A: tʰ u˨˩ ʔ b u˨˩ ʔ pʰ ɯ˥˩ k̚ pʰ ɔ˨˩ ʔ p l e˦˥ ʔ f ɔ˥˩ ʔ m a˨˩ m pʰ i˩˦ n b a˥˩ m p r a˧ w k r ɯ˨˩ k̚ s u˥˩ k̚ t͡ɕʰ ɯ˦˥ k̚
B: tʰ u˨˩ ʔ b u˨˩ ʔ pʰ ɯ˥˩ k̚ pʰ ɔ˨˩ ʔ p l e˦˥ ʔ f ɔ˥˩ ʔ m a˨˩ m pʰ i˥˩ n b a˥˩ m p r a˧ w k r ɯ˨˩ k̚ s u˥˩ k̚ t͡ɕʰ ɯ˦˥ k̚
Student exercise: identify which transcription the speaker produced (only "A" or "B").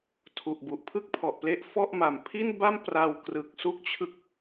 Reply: B